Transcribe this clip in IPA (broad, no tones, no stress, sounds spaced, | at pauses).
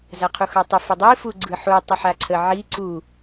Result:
z a qʰ u x ɑ tˤ ʊ f ʊ dˤ i f u ɡ͡ǀ ɯ ħ u tˤ ə ħ a ǀʰ ə ʕ i ǀ u